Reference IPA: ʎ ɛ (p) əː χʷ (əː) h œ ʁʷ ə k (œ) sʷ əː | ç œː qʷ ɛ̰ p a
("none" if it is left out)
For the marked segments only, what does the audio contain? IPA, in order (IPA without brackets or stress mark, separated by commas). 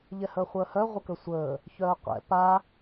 h, əː, ə